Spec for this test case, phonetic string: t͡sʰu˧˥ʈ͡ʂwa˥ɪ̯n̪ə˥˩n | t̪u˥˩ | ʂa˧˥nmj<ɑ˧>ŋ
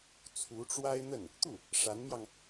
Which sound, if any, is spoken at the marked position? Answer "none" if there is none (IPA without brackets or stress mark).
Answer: ɑ˧